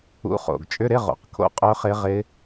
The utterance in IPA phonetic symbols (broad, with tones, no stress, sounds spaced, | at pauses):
ṵ˨˥ χ o̰˨˩ ɡ t͡ʃʼ ʏ˧˥˧ ɾ ɪ˧˥˧ ʁ o̰˨˩ q kʰ o̰˦˥ qʼ œ˦˥ χ ɪ˦˥ ʁ ɪ˦˥